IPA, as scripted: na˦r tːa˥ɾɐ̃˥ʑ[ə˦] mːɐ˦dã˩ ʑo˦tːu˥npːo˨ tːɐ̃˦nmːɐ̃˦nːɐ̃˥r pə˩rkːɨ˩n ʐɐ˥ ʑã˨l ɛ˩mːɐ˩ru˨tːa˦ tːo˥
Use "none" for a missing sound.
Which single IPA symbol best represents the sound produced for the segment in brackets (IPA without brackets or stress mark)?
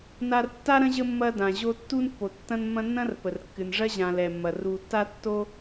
ə˦